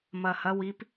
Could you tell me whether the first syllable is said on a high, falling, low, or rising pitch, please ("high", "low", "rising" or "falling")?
low